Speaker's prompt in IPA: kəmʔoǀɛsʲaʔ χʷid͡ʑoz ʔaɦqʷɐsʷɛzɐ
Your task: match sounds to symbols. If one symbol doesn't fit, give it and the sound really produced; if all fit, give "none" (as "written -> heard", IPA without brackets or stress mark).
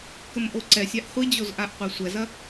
ɦ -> ʔ